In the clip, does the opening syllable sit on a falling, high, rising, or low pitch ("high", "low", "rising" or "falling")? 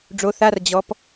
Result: rising